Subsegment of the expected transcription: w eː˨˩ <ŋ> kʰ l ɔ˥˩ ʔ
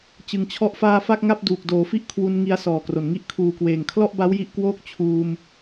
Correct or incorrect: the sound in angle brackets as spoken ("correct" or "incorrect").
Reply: correct